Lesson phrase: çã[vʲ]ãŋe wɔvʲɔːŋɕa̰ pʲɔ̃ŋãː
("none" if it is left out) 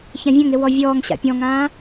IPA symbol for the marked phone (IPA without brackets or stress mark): vʲ